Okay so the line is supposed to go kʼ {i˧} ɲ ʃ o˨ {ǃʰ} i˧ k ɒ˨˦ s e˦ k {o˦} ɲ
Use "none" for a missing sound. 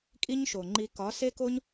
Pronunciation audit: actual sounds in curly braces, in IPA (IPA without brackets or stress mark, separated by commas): i˦, ŋ͡ǃ, o˦